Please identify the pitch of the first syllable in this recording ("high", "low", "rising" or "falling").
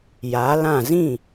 rising